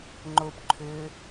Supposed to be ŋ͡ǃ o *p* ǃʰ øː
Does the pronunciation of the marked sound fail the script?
no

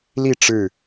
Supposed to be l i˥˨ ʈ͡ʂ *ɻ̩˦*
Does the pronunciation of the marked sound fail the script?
yes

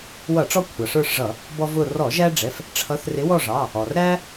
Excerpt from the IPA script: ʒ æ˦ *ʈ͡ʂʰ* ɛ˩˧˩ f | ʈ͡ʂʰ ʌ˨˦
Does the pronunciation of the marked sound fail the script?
yes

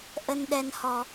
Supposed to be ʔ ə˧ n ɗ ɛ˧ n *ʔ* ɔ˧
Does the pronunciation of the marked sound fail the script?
yes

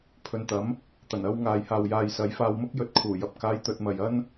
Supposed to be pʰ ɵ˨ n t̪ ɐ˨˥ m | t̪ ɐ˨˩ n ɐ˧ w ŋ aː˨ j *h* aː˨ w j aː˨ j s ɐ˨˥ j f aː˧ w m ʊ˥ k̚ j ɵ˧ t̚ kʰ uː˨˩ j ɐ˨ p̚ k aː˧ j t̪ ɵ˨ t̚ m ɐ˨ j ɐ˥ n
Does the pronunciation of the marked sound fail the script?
no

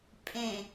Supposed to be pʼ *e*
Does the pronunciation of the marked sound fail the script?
yes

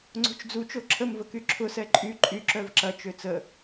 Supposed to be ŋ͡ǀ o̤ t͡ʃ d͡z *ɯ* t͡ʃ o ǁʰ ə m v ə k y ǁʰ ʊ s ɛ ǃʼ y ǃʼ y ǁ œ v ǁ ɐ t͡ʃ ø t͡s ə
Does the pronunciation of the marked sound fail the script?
yes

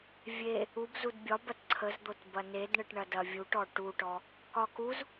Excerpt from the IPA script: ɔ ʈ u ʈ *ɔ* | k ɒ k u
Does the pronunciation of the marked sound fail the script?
no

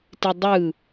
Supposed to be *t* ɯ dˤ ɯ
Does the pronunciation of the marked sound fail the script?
no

